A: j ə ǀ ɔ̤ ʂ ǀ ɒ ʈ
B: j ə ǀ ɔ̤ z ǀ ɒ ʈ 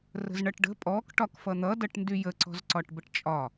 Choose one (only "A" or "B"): B